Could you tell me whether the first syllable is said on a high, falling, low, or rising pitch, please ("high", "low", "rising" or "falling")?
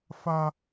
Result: high